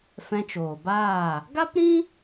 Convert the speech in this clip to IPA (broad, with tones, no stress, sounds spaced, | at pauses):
f ɛ̃˧ t͡ʃ oː˨ b aː˦˨ | ɡ a˦ p ɾ ĩ˦